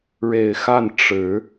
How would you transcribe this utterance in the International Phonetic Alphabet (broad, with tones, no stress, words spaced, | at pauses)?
ɻe˨˩ɪ̯xa˥˨n ʈ͡ʂɻ̩˨˦